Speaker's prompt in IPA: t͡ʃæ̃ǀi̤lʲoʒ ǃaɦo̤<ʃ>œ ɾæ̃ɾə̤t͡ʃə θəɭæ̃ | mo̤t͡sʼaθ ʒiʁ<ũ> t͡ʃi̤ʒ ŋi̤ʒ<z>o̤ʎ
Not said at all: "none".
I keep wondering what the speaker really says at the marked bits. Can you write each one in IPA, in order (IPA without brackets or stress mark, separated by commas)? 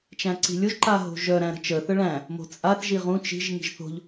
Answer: ʒ, ũ, θ